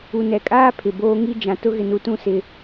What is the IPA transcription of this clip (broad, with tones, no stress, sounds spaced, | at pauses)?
u˨ n ɛ˨ kʼ aː˦ pʰ ɪ˨ b oː˦ ŋ i˦ d͡ʒ ã˨ t ʊ˦ ɣ ɪ˨ n u˨ t ũ˦˨ s ɪ˦